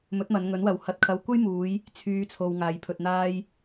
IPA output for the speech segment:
m ɵ˨˥ t̚ m ɐ˨˧ n ŋ ɵ˨˥ n w ɐ˨ w h ɐ˨ t̚ kʰ ɐ˨˧ w kʷ ɐ˥ j m uː˨˧ j | t͡sʰ yː˨˧ t͡sʰ o˨ w ŋ aː˨˧ j pʰ ɵ˧ t̚ n̪ aː˥ j

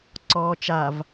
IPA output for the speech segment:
ǀ ɔː t͡ʃ a v

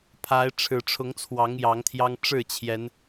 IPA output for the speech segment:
pʰ a˨˦ ɪ̯ ʈ͡ʂʰ ɻ̩˨˩ ʈ͡ʂʰ ʊ˨˦ ŋ t͡sʰ w ɑ˨˦ ŋ j ɑ˨˦ ŋ t̪ʰ j ɑ˦ ŋ ʈ͡ʂ ɻ̩˥˨ t͡ɕʰ j ɛ˨˦ n

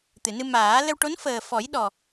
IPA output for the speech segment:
t̪ ɨ˨˩˨ n ɨ˧ m aː˨˩˦ l ə˧ w ʈ o˧˥ n f əː˨˩ f ɔ˨˩˦ j ɗ ɔ˨˩

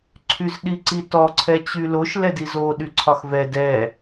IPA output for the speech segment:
ǀʰ y z ɗ i ǀ i t ɔ ǀʰ ɛ t͡ɕ y l o ʃ l ɛ d i z o ɗ y ǀʰ ɒ x v ɛ d ɛ

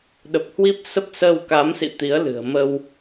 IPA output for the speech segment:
ɗ ə˨˩ p̚ h w i˦˥ p̚ s ə˦˥ p̚ s əː˧ w k a˨˦ m s ḭ˧˨ t̪ i˨˦ ə̯ l ɨ̤˨˩ ə̯ m ə˧ w

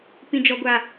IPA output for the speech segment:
p ĩ˦ d͡ʒ ɔ˦ ɡʷ a˦

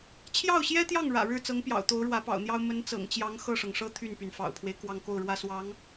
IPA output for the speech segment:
t͡ɕʰ j ɑ˥˩ ʊ̯ ɕ j ɛ˥ t̪ j ɑ˥˩ ŋ ɻ ä̰˨˩ ɻ ɻ̩˥˩ t͡s ɤ˧˥ ŋ p j ɑ̰˨˩ ʊ̯ t̪ o˧˥ ʊ̯ ɻ w ä˧˥ p ɑ̰˨˩ ʊ̯ n̪ j ɑ˥ ʊ̯ m ə˧˥ n t͡s ɤ̰˨˩ ŋ t͡ɕ j ɑ˧˥ ŋ x ɤ˥˩ ʂ ɤ˩ ŋ ʂ ɤ˥ t̪ʰ y˥˩ n p y˩ n f ɑ̰˨˩ ʊ̯ pʰ w e˦ ɪ̯ k w ɑ˥˧ ŋ k o˥˩ ʊ̯ ɻ w ä˥ s w ɑ˧˥ ŋ

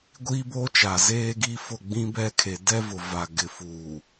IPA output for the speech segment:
ɡʷ iː˦ b oː˦ t͡ʃ a˨ z eː˦ ɡ i˦ f ʊ˦˨ ɡ͡b ĩ˦ b ɛ˦ kʰ e˨ d ɛ˦ v ʊ˨ v a˨ ɡ ɪ˨ f uː˨

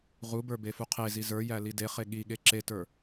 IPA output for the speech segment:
ʁ u b ə˞ b e f u qʰ e z i z ə˞ j æ l i d e χ e ɠ i ɠ e ǁ e t ə˞

